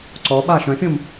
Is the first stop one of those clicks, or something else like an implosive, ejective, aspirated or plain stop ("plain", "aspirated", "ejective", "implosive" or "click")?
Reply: click